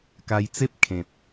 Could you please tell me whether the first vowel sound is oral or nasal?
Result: oral